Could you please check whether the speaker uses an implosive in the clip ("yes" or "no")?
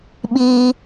yes